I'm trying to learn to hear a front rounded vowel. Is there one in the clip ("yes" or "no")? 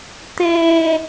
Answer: no